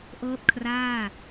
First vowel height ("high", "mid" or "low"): mid